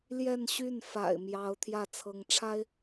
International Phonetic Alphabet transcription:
l j ɛ˥˧ n ɕ y˥˩ n f a̰˨˩ ɪ̯ m j ɑ˧˥ ʊ̯ t̪ʰ j ä˥˩ t͡sʰ ɤ˧˥ ŋ ʈ͡ʂʰ a˥ ɪ̯

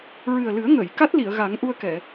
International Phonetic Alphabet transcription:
ɹ ɨ˨˩ ə̯ l ɨ˨˩˦ ə̯ ŋ ə˨˩˨ j k a˦˥ t̚ l i˨˩˨ ə̯ ɣ a˨˩˦ ŋ ʔ u˧ ə̯ k ɛ˨˩˨

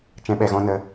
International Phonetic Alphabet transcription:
t͡ʃ ɛ̃˦ ɓ ɛ˧ ɣ ɔ̃˦ n ə˦

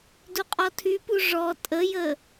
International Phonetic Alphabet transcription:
d u qʼ ɔ tʰ y p u ʐ ɔ tʼ ə j ə

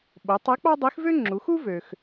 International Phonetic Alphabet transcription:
ɓ o˩˧ tˤ e˧˥ k͡p ɑ˥ dˤ i˧˥ x v ø˥ ŋ͡ǁ u˩˧ x u˥ v ø˩ x

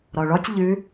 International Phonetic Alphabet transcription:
ɾ ɔ ɭ ɔ tʲ ʎ ʉ

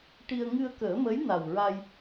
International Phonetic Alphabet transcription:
ʈ i˧ ə̯ ŋ ɨ˧ ə̯ k əː˨˩˦ m ə˧˥ j n a˨˩ w ɹ a˧ j

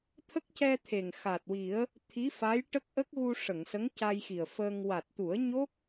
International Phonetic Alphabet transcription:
t̪ʰ ə˦˥ k̚ c ɛ˧ t̪ʰ e˨˩ ŋ x a˨˩ t̚ w i˨˩˦ ə̯ | t̪ʰ i˧˥ f a˧˥ j ʈ ə˦˥ k̚ ʔ ə˦˥ k̚ ɣ u˧ ʂ ə˨˩˨ ŋ s ə˧˥ ŋ c a˧ j x i˨˩ ə̯ f əː˧ ŋ w a˨˩ t̚ t̪ u˨˩˦ ə̯ ɲ o˦˥ k̚

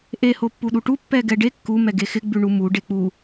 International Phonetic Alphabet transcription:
ʔ e h o pː u ɗ u ʈ u pː ɛ ɡ ɛ ɖ e kː u m ɛ ɡ e x ɪ ɡ͡b ʉ ɳ u m u ɖ e k͡p u

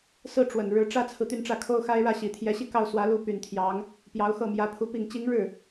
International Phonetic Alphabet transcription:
s ɹ̩˥˩ ʈ͡ʂ w ə˨˩ n ɻ ɻ̩˧˥ ʈ͡ʂ ä˥ t͡sʰ ɹ̩˨ t̪ y˥˧ n ʈ͡ʂ ä˥˩ kʰ o˥ ʊ̯ x a˥ ɪ̯ ɻ ä˥˩ ɕ i˨˩ t̪ʰ j ɛ˧˥ ɕ i˥˧ k ɑ˥˩ ʊ̯ s w ä˧˥ l u˥˩ p y˨˩ n t̪ʰ j ɑ˧˥ ŋ | p j ɑ˧˥ ʊ̯ x ɤ˥˩ m j ä˧˥ pʰ u˧˥ p i˨˩ ŋ t͡ɕ i˧˥ ŋ ɻ ɻ̩˥˩

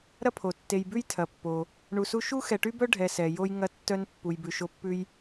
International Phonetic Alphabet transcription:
ɾ ɐ˥ pʰ o˩ tː e˨ j b ʉ˥ j tʰ ɐ˩ pː o˩ | ɳ u˨ s u˦ ʃ u˥ x ɛ˨ ʈ y˥ b œ˥ ɖʱ ɛ˨ s ɛ˩ j o˦ j ŋ ɐ˦ tː œ˦ n pː u˨ j b ʉ˨ ʃ o˦ pː ʉ˥ j

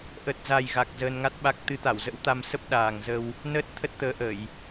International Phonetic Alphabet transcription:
ʔ ə˨˩ t̚ z a˨˩ j ɣ a˨˩ k̚ z əː˧ n ŋ a˦˥ t̚ ɓ a˦˥ k̚ t̪ ɨ˨˦ t̪ a˧˩ w z ə̰˧˥ w t̪ a˧ m s ə˦˥ p̚ ɗ aː˨˩ ŋ z ə˧ w | n əː˦˥ t̚ t̪ʰ ə˦˥ t̚ t̪ əː˨˦ ʔ ə˧˩˨ j

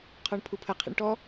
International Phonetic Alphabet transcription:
qʰ ɔ ɳ pʰ u pʰ ə qʰ ḭ ɳ ʈ ɔ

